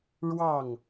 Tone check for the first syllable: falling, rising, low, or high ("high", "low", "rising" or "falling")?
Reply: falling